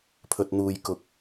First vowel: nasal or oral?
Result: oral